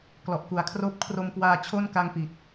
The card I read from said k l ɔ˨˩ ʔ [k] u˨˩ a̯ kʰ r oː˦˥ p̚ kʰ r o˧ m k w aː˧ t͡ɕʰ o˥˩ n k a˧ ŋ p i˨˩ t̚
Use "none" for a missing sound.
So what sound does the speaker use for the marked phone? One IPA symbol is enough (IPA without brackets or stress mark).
k